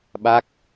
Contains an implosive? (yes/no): yes